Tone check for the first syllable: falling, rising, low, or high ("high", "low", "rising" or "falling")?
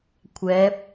rising